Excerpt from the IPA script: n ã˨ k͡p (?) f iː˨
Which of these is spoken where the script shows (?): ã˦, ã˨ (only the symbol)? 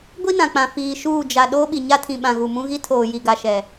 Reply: ã˨